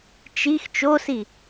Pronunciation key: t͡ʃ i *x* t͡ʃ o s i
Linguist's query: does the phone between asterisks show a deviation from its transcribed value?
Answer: no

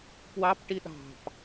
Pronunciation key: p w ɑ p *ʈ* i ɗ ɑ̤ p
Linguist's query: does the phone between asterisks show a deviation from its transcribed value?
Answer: no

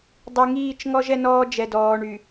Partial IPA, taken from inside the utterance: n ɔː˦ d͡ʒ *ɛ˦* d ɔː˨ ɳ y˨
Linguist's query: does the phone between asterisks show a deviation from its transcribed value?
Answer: yes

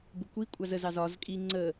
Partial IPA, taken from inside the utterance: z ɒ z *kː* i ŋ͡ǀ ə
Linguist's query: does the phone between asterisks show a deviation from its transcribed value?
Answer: yes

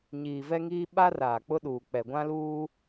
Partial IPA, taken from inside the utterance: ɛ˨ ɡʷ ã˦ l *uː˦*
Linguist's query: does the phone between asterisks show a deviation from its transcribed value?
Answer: no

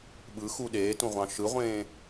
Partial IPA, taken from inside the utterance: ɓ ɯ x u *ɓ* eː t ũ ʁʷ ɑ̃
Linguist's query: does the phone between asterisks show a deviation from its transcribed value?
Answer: yes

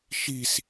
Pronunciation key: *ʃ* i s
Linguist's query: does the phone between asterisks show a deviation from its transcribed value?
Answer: no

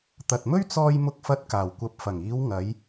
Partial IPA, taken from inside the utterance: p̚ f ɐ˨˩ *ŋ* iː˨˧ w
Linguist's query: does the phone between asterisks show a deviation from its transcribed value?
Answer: no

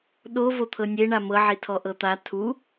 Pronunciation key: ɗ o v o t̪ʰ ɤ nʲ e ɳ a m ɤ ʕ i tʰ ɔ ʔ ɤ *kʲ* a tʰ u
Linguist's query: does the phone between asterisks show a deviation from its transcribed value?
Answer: yes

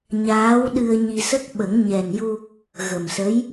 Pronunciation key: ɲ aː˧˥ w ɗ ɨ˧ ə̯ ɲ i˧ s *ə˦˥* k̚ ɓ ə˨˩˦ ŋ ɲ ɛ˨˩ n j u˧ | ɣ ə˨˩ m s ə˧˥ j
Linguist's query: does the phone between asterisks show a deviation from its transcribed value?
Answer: no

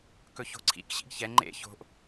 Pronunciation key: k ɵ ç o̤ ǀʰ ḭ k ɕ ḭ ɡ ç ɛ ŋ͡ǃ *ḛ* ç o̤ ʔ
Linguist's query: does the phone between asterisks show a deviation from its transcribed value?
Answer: no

